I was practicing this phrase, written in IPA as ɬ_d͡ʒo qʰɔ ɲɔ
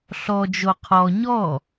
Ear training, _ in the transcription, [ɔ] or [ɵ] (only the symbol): ɔ